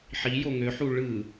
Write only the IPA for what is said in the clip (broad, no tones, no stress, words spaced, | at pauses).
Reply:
ħijo ŋøħu ɭɯ